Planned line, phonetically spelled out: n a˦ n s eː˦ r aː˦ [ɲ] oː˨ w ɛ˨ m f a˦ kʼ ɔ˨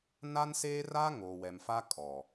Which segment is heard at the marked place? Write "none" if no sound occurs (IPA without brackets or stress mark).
ŋ